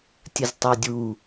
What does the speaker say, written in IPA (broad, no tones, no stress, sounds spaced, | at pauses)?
tʲ ə z tˤ ɛ dʲ u